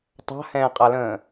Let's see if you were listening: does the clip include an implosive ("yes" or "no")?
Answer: no